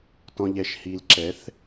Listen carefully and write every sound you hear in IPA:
t ɔ̃˨ ʎ ɛ˨ ʃ h i˨ l ǁ ɛ˨˦ θ

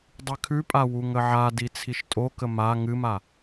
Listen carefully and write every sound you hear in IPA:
dˤ ɨ kʰ ʉ pʼ a w u ŋ ə ʕ a d i t͡sʰ i ʃ tʼ o k ə m a ŋ ɨ m a

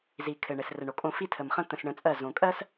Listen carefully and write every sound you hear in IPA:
z i˨ kʰ ɘ˨ ɳ ɘ˨ s r ɘ˨ ɳ o˨ kʼ õ˧ f i˧ tʰ ə˨ m χ ə̃˧ t̪ ə̃˧ s ɳ ə̃˧ t͡sʼ ɜ˦˨ z õ˨ kʼ ɜ˦ s

